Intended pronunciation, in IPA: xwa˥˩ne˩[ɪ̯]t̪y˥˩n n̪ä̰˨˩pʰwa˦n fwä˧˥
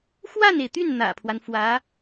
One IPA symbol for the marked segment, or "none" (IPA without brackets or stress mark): ɪ̯